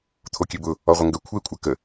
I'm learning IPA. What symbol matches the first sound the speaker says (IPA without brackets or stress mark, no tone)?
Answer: t̪ʰ